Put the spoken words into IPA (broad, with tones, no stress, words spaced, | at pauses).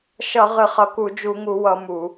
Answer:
ʃʌ˧˩˧ ʁɨ˧˩˧χʌ˨˦ku˧˩˧ d͡ʒu˧˩˧ŋu˧˩˧wʌ˧˩˧ mu˧˩˧